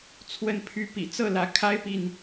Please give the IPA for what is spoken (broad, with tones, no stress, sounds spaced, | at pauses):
t͡sʰ w ə˥˨ n pʰ y˥˨ p ḭ˨˩ t͡s ɤ˥˨ l ä˨˦ kʰ a˦ ɪ̯ p i˨ n